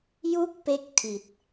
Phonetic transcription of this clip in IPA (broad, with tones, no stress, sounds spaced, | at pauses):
j u˥˩ k̚ p e˦˥ k̚ tʰ i˨˩ t̚